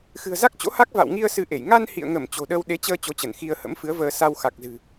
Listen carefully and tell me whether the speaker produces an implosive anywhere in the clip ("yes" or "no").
yes